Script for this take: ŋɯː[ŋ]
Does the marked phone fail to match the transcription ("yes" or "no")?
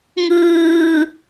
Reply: yes